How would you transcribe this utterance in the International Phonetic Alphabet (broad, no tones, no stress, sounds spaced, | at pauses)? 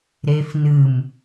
ɾ e f n ɨ m